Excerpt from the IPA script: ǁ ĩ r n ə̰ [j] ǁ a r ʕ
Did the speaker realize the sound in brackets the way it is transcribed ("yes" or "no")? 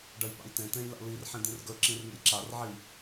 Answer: yes